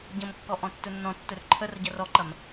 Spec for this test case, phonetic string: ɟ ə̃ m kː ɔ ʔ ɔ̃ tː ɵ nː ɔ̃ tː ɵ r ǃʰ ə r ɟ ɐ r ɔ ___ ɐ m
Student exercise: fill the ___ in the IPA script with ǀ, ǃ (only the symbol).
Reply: ǃ